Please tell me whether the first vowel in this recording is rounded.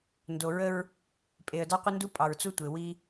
yes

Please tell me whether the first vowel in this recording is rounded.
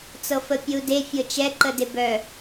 no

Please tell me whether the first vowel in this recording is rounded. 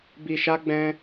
no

